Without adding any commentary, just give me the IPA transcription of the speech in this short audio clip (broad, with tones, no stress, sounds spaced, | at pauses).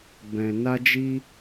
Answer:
b ɛ̃˧ n a˦ d͡ʒ i˦